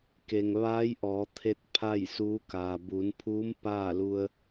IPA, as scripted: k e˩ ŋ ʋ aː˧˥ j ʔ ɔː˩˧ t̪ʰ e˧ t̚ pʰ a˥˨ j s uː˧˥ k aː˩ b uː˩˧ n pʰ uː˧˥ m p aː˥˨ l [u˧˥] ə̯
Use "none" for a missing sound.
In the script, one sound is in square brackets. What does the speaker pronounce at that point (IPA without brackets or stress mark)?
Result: u˧